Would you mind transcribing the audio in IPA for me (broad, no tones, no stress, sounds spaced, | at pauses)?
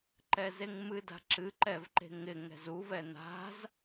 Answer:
ǃ ɛ z e ŋ m ɨ d a̤ ǁ ɨ ǃ ɛ v ǃ e̤ ŋ ɪ ŋ ɛ̤ z u v ɛ n̪ a̤ z